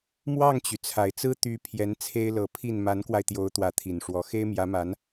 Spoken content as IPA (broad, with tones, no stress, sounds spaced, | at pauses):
m w ɑ˥˩ ŋ t͡ɕ y˩ t͡sʰ a˨˩ ɪ̯ t͡s ɹ̩˥ t̪ y˧˥ pʰ j ɛ˧˥ n t͡sʰ e˥ ɪ̯ l ɤ˧˥ pʰ i˥˩ n m a˧˥ n k w a˧ ɪ̯ t̪ j o˧˥ ʊ̯ t̪ w ä˧˥ t̪ʰ i˨˩ n ʂ w ɔ˧˥ x e˥ ɪ̯ m j ä˧˥ m a˧˥ n